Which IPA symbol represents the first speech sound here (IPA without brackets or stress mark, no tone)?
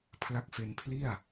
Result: pʰ